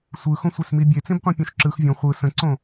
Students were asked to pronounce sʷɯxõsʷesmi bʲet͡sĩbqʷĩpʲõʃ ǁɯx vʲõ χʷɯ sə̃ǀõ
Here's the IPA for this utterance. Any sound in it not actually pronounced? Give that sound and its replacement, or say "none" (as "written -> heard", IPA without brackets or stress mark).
none